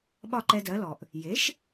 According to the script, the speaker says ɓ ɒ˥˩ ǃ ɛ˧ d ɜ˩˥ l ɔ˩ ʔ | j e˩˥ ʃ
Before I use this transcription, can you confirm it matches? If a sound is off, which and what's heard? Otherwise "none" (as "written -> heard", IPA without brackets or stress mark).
none